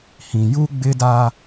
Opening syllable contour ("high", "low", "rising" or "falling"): low